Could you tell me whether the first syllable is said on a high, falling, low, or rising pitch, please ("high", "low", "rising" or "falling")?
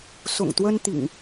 low